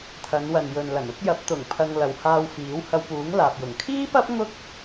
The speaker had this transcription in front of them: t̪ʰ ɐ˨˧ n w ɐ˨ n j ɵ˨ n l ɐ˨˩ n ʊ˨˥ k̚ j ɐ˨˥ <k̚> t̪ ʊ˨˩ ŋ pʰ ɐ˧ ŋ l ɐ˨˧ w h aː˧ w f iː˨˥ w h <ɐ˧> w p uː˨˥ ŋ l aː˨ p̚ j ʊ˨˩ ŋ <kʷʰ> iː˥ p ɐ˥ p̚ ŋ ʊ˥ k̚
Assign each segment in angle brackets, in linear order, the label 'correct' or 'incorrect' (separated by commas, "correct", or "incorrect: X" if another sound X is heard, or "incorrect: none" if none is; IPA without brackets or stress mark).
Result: incorrect: p̚, correct, incorrect: kʰ